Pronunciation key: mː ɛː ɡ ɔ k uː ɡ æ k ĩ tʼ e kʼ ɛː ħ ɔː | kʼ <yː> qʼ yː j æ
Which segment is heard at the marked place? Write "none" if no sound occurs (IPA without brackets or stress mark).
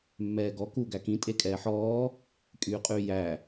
yː